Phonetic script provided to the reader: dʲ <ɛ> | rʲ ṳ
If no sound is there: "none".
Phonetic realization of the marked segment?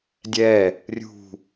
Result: ɛ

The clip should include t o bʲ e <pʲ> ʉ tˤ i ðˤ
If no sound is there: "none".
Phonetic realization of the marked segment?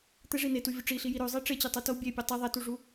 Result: pʲ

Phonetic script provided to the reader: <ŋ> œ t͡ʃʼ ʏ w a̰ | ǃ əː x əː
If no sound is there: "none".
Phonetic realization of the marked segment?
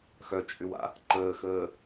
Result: x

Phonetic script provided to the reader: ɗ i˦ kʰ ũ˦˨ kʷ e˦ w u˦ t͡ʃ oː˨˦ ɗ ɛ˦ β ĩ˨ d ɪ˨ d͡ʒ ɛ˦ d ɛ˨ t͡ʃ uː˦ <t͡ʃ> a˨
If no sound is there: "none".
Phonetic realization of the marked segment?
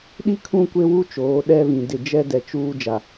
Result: d͡ʒ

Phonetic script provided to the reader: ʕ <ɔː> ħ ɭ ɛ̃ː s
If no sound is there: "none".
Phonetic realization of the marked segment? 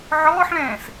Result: ɔː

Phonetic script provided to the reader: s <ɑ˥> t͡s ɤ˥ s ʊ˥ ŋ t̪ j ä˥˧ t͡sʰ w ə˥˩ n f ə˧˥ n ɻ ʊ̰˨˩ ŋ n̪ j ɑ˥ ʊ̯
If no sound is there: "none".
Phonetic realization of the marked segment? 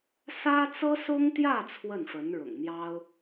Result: ä˥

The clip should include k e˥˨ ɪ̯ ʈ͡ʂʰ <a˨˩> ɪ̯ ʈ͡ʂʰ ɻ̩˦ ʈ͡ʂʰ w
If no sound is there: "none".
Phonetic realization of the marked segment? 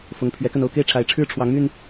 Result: a˨˦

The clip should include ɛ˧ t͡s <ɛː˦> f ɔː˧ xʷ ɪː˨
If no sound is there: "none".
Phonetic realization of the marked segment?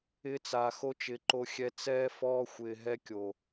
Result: ɛː˦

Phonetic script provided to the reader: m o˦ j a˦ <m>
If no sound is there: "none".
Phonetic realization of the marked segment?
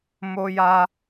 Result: none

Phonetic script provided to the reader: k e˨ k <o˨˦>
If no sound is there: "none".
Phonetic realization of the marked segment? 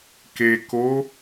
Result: o˨˦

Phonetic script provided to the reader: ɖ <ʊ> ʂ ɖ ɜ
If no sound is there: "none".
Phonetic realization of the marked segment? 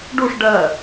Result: u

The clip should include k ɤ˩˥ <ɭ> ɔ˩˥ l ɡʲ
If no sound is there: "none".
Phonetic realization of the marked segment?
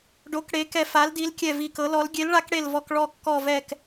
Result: l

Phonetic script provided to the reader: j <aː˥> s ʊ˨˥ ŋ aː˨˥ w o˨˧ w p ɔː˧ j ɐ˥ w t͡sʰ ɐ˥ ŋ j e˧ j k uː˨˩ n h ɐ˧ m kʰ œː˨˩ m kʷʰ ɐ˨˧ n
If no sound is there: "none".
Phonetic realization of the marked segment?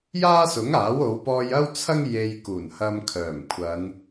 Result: aː˥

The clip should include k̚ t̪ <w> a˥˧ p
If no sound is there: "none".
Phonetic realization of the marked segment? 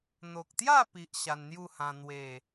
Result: j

